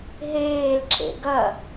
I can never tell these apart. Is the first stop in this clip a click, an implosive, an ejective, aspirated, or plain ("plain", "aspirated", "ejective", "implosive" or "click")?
click